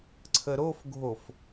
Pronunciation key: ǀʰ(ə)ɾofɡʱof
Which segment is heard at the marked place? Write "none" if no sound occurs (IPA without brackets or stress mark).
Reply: ə